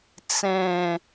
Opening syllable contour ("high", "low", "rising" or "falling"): falling